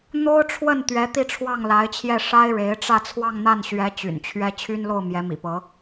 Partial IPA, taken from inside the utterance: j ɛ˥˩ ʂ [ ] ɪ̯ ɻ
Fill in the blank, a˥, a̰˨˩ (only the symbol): a˥